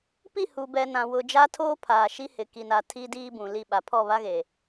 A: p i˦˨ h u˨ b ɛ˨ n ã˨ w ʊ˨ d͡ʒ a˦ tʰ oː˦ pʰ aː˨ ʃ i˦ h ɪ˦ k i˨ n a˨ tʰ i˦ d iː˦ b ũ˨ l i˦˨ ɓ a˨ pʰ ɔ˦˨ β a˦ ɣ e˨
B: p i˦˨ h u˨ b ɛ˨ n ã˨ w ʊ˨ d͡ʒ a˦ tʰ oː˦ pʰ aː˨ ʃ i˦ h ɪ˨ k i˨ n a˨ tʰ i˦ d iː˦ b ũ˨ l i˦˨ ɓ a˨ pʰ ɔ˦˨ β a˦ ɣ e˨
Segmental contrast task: B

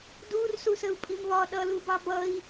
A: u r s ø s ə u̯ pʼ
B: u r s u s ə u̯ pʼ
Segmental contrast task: B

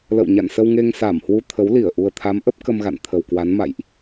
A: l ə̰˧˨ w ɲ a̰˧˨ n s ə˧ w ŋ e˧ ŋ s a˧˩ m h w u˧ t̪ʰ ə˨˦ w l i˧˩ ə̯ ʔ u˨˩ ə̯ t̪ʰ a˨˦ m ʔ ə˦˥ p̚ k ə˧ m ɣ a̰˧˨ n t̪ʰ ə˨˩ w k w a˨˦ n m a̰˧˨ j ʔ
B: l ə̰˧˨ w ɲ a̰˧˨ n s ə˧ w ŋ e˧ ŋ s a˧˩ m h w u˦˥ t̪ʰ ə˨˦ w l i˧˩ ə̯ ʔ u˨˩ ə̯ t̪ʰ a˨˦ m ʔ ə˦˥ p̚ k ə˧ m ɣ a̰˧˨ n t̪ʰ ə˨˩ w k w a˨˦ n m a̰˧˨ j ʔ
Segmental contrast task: A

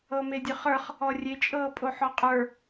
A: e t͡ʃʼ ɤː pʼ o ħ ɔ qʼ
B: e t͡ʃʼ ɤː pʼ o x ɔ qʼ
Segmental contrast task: A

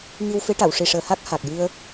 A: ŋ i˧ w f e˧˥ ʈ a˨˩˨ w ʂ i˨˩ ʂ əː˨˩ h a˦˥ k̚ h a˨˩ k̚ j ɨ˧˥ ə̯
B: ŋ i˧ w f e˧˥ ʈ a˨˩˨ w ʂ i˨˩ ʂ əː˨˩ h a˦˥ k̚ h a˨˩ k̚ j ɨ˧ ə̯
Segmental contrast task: B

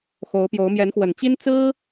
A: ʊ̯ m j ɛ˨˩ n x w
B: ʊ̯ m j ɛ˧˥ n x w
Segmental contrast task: B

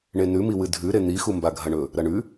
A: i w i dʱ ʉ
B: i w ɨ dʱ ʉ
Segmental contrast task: B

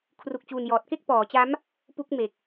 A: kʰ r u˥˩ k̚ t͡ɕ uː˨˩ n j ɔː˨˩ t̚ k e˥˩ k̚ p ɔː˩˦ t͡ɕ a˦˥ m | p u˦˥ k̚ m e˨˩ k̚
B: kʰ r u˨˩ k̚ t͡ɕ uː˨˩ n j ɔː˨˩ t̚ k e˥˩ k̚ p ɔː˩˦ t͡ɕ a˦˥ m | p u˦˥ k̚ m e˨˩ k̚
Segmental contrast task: B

